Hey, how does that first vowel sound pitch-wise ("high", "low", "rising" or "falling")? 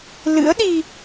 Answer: rising